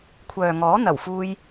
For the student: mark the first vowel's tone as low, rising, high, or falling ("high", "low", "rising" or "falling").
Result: low